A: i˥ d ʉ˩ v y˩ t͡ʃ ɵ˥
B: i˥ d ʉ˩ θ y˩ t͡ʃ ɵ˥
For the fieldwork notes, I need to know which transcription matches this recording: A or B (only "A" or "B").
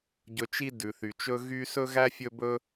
B